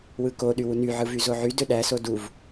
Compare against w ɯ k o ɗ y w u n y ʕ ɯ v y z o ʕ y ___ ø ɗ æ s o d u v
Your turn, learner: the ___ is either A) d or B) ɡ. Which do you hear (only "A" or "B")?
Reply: A